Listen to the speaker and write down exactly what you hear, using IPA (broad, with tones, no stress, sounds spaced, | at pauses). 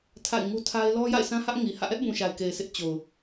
tʰ a̰˦˨ ɪ̯ ŋ u˦ tʰ a˦ ɪ̯ l ɔ˦ j a̰˦˨ ɪ̯ sʰ ã˦ h ä˦ ʔ ŋ i˨ h ä̰˦˨ ʔ ɛ˦ ʔ b ũ˨ ʃ a˨ ɪ̯ k e˨ ɪ̯ sʰ ɪ˦ ʔ t͡ɕ o˨ ʊ̯